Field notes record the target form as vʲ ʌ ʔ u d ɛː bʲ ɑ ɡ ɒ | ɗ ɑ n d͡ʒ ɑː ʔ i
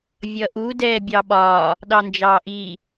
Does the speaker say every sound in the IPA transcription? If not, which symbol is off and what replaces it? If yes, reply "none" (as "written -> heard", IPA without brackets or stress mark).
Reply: ɡ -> ɓ